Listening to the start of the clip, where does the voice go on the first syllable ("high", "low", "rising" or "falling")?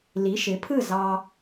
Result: rising